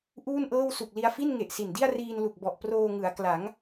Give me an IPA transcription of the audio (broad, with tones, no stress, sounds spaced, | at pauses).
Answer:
ʔ uː˥˩ n ʔ ɤː˥˩ w s u˨˩ k̚ l i˧ a̯ f i˥˩ n ŋ e˨˩ ʔ s i˨˩ n d i˥˩ a̯ r iː˧ n l u˨˩ k̚ b ɔ˨˩ ʔ p r oː˧ ŋ ɯ˩˦ a̯ k l a˩˦ ŋ